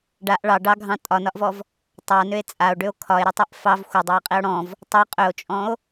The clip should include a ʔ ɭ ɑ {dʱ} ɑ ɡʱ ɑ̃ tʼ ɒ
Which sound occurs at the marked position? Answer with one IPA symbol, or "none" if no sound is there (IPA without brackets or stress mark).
ɖ